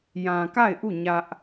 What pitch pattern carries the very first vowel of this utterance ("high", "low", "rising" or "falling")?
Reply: low